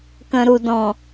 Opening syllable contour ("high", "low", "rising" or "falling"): low